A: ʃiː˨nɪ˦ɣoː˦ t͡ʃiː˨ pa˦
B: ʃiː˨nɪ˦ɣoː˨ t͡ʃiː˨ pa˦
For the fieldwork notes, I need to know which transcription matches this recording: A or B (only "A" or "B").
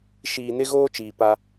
A